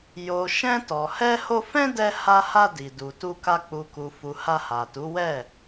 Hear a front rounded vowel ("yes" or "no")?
no